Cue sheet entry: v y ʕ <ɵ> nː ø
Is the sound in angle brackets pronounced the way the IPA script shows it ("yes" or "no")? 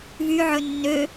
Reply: yes